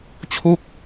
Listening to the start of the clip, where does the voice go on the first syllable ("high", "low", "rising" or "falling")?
falling